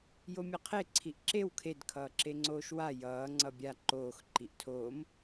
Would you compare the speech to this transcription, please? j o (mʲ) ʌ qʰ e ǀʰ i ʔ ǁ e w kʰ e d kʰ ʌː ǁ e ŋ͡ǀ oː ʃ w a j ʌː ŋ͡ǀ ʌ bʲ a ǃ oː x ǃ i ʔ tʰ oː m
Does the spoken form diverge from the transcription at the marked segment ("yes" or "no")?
no